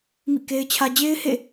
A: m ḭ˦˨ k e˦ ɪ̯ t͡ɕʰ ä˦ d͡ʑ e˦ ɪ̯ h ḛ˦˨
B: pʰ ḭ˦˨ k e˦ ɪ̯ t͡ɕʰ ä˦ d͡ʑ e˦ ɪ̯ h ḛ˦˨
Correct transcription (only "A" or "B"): A